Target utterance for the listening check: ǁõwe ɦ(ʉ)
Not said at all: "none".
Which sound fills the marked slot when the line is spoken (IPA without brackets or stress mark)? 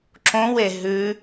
ʉ